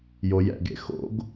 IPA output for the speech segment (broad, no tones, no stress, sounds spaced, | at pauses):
j o j ɛ̰ ɡ ḛ x o̰ ɡ